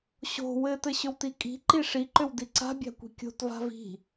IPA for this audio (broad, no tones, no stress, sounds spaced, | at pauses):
ɕ o̤ w ɘ t ɘ ɕ ʏ w t i kʼ i̤ ǃ i ʂ i ǃ ʏ w d i ǀ a̤ bʲ a̤ kʷ i̤ kʲ o̤ t v a̤ v i̤